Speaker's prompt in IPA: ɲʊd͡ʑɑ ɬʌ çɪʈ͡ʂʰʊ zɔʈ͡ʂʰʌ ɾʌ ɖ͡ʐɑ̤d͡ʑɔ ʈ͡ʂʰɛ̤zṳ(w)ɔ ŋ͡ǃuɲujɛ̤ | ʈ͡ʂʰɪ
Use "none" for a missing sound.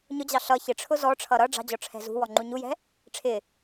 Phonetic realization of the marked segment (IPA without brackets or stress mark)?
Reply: w